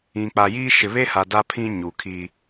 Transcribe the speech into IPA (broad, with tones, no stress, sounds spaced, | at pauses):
ĩ˨ k͡p a˨ j iː˦ ʃ ɪ˨ β e˦ h a˨ d a˦ pʰ ĩ˦ ɲ u˨ kʰ i˦